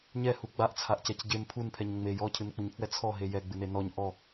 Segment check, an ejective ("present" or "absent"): absent